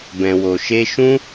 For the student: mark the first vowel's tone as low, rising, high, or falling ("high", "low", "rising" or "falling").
low